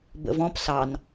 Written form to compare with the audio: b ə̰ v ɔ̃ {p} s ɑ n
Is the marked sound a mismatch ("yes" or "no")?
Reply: no